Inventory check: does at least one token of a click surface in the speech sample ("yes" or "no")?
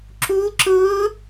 yes